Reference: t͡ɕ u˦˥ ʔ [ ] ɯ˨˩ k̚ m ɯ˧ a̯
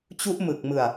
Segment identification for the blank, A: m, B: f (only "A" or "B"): A